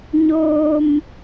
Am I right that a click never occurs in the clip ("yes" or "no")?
yes